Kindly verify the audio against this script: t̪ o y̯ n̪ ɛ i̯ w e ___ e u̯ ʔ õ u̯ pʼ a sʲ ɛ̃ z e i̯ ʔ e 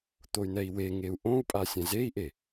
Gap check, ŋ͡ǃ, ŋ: ŋ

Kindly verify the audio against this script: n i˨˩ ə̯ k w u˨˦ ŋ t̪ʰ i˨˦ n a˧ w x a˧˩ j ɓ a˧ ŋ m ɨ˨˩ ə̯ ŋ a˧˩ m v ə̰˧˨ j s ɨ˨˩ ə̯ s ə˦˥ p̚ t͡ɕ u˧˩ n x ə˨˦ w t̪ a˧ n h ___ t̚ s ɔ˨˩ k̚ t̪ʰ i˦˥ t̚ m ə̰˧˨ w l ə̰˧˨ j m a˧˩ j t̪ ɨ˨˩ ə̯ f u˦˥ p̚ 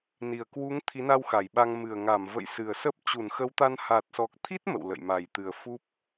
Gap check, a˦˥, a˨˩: a˨˩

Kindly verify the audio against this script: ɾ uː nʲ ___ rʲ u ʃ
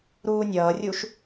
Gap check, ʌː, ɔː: ʌː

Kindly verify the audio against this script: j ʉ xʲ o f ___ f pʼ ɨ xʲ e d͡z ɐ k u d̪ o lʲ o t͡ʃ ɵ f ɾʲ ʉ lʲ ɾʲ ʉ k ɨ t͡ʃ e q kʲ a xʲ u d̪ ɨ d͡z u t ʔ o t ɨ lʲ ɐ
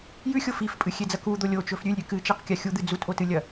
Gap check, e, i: i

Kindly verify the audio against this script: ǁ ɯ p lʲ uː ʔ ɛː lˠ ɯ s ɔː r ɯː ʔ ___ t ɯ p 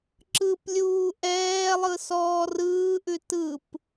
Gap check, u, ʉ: ʉ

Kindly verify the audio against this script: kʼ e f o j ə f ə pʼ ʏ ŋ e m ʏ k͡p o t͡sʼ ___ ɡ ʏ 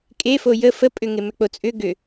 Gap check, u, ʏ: ʏ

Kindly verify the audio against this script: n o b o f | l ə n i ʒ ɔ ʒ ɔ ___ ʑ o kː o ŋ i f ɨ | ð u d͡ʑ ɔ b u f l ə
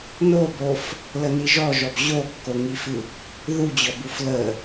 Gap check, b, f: b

